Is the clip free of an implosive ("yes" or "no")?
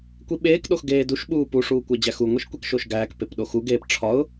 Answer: no